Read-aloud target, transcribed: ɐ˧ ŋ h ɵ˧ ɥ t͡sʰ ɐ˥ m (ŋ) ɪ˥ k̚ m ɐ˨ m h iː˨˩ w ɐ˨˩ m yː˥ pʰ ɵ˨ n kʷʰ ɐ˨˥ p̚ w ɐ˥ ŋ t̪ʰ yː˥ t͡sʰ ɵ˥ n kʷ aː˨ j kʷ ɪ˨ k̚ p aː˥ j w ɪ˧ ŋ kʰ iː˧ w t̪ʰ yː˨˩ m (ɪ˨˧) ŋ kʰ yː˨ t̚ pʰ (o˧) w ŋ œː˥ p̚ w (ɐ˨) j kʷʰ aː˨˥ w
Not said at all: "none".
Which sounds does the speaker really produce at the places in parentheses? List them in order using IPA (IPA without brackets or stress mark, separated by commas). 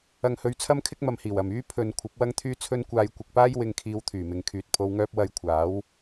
kʰ, ɪ˨, o˧, ɐ˧